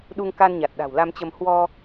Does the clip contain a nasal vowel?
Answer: no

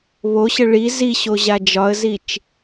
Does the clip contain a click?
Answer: no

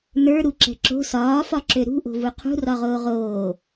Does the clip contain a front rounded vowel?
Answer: yes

